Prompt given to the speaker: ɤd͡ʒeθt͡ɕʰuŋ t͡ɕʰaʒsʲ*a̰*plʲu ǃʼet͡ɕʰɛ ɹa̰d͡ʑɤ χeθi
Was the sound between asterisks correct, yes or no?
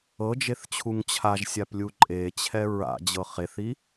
no